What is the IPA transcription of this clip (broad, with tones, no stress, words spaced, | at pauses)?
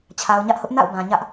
t͡ɕʰa˨ʊ̯ɲä˦ʔhʊ˦ʔ na̰˦˨ʊ̯bã˨ɲä˦ʔ